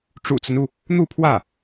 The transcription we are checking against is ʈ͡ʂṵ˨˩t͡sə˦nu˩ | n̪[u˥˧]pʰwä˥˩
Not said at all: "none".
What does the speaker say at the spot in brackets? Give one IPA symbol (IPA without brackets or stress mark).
u˥˧